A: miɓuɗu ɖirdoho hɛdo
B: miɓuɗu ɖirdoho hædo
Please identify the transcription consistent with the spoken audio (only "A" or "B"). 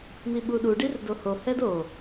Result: A